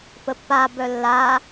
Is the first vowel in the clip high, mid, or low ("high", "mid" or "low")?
mid